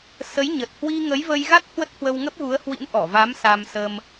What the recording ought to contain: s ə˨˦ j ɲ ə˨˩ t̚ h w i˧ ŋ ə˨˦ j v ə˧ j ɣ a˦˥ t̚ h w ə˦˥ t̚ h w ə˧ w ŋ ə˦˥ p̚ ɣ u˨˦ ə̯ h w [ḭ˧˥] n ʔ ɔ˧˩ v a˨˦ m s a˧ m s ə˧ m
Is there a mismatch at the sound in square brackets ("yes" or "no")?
no